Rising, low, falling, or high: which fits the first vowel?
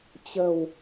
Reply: low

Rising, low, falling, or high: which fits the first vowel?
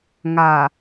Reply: low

